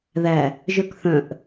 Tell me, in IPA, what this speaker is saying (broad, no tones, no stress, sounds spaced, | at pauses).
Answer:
ð æ | ʒ œ k θ œ̃ ʔ